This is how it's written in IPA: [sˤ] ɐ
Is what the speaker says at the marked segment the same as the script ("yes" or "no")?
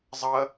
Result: no